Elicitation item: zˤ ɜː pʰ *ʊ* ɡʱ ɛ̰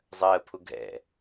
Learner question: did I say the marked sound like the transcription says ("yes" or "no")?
yes